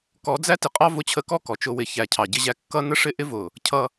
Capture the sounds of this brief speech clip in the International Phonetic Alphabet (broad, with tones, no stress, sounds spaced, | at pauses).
k ɔ˨˦ d͡z æ˦ t ɪ˨ qʼ ɑ˦ v ʊ˧ t͡ɕʰ ə˧ k ɔ˦ k ɔ˨ t͡ʃ ʊ˧ w ɪ˨˦ ç æ˨ cʰ ɑ˨ ɟ ɪ˧ ʑ æ˧ kː ʌ˦ n ə˦ ʂ ɪ˦ ʔ ɪ˦ v ʊ˨ | cʰ ʌ˧